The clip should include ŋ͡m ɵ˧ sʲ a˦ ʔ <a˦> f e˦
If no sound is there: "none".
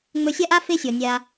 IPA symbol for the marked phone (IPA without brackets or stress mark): a˦